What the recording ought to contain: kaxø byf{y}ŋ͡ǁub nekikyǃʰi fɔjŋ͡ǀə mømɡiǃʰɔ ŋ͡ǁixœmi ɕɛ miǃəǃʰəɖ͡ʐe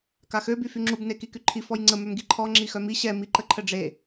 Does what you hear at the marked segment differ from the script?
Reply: no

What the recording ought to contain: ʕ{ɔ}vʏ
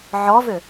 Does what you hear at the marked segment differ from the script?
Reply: no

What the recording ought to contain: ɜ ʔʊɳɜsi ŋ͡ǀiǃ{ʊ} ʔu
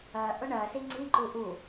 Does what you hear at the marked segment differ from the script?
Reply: yes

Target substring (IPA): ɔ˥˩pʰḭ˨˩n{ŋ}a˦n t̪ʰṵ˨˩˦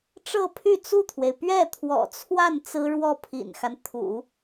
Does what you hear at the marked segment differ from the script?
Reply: yes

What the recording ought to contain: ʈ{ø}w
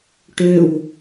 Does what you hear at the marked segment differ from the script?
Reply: no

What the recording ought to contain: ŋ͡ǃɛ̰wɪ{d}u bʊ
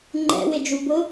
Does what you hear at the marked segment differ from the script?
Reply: yes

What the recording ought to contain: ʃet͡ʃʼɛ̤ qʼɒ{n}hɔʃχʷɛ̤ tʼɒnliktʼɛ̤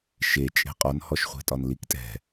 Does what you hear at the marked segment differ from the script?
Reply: no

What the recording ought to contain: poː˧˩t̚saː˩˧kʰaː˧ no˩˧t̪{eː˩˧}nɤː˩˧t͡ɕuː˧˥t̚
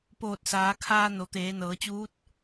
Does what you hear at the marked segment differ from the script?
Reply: no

